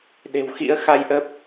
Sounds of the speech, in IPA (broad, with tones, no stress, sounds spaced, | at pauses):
ɗ e̤˨˩ w x ḭ˧˥ ə̯ x a˧ j ʔ ə˦˥ p̚